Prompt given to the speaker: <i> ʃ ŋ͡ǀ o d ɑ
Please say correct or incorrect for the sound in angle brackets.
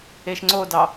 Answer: incorrect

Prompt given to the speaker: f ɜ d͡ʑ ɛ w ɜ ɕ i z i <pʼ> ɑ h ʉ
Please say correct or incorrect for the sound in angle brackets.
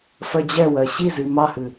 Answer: incorrect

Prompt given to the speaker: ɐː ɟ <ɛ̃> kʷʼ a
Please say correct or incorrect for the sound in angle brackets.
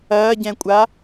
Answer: correct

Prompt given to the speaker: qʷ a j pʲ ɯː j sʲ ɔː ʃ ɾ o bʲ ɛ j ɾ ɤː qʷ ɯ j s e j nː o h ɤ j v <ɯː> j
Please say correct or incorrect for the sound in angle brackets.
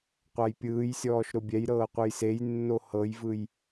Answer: incorrect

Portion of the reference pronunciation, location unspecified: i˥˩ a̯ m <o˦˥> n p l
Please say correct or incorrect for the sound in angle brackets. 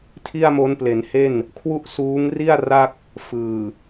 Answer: correct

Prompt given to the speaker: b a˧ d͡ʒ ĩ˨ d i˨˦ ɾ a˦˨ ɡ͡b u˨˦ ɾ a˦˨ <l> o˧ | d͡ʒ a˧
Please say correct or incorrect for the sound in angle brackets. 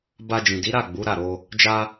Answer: incorrect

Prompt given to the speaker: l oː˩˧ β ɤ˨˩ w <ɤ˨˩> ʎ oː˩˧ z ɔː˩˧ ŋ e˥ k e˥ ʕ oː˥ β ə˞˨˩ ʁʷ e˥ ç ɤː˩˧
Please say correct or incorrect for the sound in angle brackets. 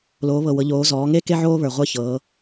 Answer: incorrect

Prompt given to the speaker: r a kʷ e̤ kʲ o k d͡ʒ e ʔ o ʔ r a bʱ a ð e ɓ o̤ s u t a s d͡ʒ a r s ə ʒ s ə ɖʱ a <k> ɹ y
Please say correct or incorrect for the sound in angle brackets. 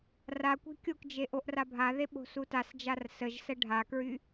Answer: correct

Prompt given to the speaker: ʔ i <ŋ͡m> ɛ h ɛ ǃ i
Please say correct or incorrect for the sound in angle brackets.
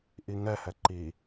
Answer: incorrect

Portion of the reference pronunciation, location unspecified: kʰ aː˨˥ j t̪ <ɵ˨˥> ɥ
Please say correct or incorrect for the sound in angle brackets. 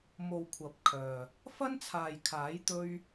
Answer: incorrect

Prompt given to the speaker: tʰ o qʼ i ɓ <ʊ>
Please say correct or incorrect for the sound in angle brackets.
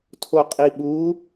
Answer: incorrect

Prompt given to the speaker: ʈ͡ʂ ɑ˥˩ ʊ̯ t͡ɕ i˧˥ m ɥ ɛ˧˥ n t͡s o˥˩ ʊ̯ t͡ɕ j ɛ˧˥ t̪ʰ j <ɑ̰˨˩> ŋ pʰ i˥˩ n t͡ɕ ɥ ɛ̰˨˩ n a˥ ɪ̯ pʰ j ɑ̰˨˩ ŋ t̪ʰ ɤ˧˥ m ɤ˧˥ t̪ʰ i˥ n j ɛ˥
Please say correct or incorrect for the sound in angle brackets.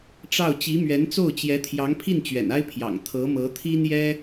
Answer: incorrect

